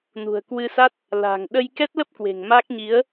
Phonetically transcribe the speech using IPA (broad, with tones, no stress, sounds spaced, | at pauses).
n ṳ˨˩ ə̯ k w ɨ˧ s a˦˥ t̚ | l a̤˨˩ ŋ ɗ ə˧ j k ɛ˦˥ t̚ l ə˦˥ p̚ k w e̤˨˩ ŋ m a˦˥ k̚ ɲ i˨˦ ə̯